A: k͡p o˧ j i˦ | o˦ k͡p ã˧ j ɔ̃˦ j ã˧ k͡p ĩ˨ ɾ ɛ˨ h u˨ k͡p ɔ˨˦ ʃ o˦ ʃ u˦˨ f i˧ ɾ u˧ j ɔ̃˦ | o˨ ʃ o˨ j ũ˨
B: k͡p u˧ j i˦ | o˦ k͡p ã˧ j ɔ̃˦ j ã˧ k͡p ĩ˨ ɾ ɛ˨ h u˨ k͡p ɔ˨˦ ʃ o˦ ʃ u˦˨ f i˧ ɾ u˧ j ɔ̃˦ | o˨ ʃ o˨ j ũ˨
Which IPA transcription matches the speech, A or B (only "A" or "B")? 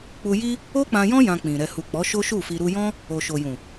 B